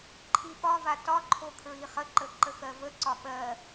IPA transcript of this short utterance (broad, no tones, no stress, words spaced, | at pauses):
ǃʰiɓɒva tɒǃʰo kʰɹiχəǃə ǃəxɜvəǀɒ ɓɜ